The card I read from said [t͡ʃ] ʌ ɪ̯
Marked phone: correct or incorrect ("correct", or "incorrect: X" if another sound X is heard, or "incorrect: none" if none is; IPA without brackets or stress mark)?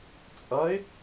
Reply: incorrect: t͡sʼ